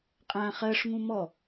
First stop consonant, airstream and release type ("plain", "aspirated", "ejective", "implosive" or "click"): ejective